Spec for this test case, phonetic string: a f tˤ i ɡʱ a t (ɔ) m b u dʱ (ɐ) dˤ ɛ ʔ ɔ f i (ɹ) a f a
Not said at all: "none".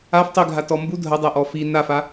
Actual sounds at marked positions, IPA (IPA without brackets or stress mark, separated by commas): ɔ, ɐ, n